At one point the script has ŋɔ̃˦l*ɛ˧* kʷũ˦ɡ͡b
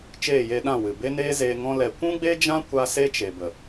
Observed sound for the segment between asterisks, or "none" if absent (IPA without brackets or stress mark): ɛ˧